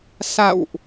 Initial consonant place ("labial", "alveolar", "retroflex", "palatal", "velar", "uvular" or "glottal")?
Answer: alveolar